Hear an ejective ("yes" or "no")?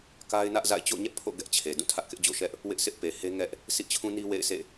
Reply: no